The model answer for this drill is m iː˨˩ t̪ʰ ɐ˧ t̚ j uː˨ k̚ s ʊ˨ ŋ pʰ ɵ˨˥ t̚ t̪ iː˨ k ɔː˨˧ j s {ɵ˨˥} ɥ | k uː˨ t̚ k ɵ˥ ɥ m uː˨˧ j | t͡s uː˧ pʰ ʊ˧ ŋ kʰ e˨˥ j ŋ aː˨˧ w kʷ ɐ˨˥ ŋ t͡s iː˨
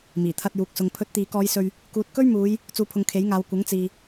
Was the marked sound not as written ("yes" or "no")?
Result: yes